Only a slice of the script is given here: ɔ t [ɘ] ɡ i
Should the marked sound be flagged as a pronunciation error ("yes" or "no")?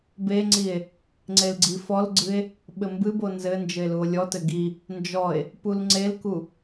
no